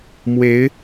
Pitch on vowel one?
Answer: rising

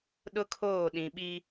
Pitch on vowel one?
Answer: high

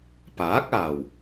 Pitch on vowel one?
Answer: rising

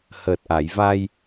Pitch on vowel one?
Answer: low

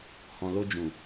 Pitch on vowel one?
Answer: low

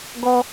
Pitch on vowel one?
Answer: high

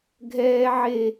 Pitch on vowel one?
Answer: high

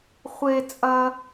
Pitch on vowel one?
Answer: high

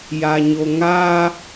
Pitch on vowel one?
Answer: low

